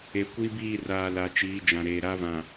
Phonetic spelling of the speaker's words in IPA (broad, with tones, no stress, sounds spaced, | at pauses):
e˨ kʷ i˦ b iː˦˨ r aː˨ l a˨ t͡ʃ iː˨˦ d͡ʒ ã˨ ɾ eː˨ ɾ a˦ v ã˨